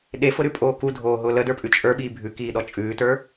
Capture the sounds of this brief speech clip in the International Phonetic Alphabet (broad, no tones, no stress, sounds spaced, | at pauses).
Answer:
ɗ e f ʊ ɾ ʉ pʼ oː k u dʱ oː ɦ ʊ l ə d ə˞ pʼ ʉ t͡ʃʼ ə˞ ɓ iː bʱ ʉ k iː ɗ ɔ t͡ʃʼ ʉː t ə˞